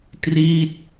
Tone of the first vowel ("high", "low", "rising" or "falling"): falling